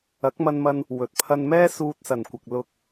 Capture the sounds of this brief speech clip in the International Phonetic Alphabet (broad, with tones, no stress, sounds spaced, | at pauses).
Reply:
ɐ˨˥ k̚ m ɐ˧ n m ɐ˧ n | w ɵ˨˥ t̚ pʰ ɐ˧ n m ɛː˥ s uː˧ t̚ s ɐ˨˩ n kʷ ɐ˨ k̚ l ʊ˧ k̚